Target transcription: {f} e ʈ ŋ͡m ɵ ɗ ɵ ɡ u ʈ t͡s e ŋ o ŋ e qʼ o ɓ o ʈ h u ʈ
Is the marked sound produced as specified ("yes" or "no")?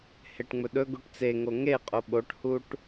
no